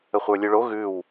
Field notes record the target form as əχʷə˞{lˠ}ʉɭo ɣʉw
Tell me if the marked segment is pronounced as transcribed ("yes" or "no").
no